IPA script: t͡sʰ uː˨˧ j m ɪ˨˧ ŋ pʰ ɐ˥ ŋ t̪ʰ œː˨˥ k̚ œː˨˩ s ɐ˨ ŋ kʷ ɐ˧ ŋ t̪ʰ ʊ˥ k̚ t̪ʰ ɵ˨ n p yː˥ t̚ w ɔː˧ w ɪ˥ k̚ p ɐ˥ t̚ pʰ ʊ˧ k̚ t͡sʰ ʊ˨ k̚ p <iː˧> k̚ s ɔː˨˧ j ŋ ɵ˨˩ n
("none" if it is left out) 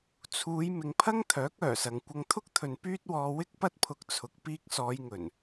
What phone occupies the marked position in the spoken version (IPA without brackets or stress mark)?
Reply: iː˧